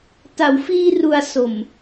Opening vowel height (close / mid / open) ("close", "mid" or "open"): open